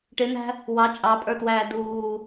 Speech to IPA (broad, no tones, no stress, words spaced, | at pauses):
ʈɪn̪æ̤ | wɑ t͡ʃʼɑpʼə˞twæː duː